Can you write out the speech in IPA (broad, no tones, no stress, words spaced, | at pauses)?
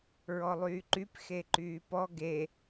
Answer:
ɹɔlˠyːǃyp xeǃyːpɔ ɡe